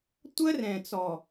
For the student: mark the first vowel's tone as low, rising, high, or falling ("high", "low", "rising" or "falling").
high